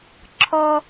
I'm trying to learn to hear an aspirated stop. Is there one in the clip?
yes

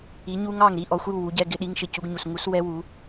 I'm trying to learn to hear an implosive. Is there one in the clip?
yes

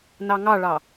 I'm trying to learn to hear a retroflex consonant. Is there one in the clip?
yes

